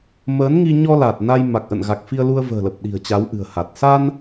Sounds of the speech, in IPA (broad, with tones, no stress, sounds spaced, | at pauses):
m əː˨˦ n ŋ i˧ ɲ ɔ˧ l a˨˩ t̚ n a˧ j m a˨˩ k̚ ʔ ə̰˧˨ n ɣ a˨˩ k̚ f i˧ ə̯ l u˧ ə̯ v ə̤ː˨˩ l ə˨˩ p̚ ɗ i̤˨˩ ə̯ t͡ɕ a˨˦ w ʔ ɨ̤˨˩ ə̯ h a˨˩ t̚ s a˧ n